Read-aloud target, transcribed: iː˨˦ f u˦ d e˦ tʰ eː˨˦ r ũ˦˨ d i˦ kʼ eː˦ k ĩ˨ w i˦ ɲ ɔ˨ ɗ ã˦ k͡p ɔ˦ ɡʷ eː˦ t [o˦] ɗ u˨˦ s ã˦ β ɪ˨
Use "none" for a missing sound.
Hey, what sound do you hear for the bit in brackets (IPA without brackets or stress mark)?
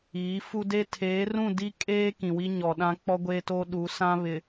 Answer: o˦